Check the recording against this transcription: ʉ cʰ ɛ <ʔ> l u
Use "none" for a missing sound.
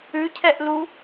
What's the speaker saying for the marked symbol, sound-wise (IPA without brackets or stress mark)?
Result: ʔ